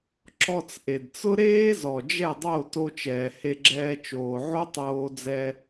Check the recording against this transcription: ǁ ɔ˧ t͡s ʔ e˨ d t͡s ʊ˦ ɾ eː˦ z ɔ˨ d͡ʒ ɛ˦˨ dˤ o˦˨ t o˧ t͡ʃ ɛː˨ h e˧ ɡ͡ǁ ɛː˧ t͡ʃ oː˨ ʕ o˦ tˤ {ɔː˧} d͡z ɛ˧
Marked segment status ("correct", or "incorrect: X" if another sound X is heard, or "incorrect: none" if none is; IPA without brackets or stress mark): incorrect: oː˧